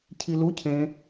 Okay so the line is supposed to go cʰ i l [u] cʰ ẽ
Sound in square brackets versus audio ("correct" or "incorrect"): correct